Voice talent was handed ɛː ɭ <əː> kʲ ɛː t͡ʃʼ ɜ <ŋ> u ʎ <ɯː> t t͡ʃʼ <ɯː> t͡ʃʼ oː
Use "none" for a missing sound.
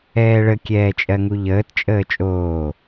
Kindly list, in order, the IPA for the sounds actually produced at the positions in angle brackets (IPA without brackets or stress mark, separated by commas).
ə, ŋ, əː, əː